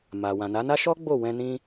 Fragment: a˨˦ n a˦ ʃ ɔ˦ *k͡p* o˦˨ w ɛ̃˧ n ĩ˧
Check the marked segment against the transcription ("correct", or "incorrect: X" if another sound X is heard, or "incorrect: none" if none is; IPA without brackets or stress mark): incorrect: ɡ͡b